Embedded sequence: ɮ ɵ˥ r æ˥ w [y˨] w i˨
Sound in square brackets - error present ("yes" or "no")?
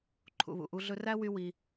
yes